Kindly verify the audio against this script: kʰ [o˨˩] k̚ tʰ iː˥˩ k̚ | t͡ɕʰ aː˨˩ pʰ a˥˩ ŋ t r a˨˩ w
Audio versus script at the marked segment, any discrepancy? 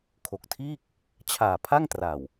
no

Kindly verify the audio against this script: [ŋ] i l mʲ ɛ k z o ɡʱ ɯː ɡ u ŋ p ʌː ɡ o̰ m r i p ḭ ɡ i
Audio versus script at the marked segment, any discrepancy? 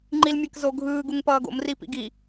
yes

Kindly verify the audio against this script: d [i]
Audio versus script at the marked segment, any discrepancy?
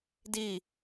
no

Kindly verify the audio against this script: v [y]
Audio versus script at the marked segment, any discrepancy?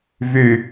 no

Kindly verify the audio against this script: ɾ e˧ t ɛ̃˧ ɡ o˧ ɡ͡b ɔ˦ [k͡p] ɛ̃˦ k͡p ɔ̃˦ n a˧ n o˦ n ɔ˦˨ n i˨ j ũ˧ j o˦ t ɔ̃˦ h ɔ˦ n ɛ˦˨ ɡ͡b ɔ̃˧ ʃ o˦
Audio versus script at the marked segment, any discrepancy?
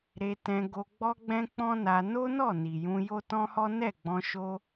yes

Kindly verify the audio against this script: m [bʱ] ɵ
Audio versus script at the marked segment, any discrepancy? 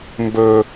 yes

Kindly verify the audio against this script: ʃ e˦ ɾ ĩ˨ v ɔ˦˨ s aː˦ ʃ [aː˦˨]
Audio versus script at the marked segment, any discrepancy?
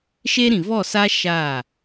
no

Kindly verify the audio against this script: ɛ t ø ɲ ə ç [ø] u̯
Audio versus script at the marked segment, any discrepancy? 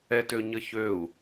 no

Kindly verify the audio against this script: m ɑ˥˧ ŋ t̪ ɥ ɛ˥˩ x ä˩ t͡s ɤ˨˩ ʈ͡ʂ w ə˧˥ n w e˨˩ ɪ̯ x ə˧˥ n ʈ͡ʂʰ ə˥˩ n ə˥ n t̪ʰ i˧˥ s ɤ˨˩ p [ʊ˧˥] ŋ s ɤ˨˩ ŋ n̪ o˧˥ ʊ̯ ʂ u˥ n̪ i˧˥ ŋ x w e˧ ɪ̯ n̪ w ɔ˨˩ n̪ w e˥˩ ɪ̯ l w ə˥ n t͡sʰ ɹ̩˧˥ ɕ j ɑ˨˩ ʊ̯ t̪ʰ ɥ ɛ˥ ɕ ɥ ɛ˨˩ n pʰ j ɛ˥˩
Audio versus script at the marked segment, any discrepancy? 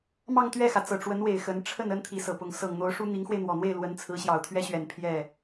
no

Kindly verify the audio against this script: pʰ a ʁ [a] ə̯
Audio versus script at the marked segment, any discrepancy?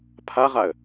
no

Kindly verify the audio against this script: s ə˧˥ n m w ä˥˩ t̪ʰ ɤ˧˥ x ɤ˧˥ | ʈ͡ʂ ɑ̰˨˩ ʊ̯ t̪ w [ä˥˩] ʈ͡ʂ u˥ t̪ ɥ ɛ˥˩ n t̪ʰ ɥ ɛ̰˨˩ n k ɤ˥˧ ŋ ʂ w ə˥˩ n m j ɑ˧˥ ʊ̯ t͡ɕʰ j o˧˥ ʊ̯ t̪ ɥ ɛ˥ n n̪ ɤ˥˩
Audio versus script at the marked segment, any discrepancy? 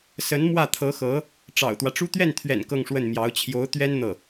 yes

